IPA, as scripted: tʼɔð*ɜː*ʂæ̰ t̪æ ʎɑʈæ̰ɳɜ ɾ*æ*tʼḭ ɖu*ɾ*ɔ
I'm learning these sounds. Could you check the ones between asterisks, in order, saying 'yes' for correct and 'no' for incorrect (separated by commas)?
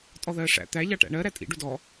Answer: yes, yes, no